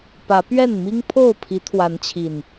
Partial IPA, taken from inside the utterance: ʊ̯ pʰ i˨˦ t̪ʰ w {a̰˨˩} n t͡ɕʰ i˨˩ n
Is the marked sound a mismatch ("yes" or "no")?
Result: yes